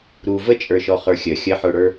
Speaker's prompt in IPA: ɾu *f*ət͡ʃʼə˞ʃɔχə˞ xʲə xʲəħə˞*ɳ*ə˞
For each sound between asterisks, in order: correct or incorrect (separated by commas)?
incorrect, incorrect